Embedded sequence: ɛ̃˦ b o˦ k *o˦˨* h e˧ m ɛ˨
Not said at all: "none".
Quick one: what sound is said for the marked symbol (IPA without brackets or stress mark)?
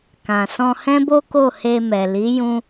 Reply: o˦˨